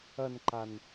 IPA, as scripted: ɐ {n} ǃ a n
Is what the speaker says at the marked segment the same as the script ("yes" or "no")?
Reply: yes